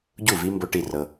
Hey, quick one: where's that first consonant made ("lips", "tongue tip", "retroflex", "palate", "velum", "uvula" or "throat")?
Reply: palate